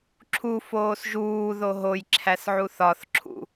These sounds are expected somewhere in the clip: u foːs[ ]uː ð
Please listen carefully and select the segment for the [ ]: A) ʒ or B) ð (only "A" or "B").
A